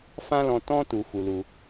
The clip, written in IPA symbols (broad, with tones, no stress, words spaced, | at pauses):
fã˦lɔ̃˧tɔ̃˦ tu˧fu˧lu˧